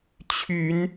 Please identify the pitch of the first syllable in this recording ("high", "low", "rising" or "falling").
rising